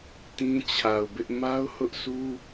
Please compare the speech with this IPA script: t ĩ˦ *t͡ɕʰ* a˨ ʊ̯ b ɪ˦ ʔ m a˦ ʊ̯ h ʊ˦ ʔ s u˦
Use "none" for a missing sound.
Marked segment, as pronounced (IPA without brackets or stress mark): t͡ɕʰ